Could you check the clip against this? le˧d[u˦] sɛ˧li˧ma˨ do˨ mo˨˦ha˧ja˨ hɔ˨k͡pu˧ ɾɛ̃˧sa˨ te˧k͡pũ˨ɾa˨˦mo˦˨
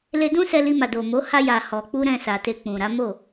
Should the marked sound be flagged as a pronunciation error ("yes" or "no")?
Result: yes